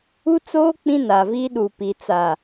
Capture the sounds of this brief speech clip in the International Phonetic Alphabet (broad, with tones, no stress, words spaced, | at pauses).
u˦t͡soː˦ k͡pĩ˦naː˨viː˦ ɗu˨pi˨ t͡sa˨